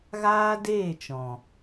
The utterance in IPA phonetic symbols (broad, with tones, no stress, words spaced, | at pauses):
ɣaː˦deː˦˨t͡ʃɔ̃˨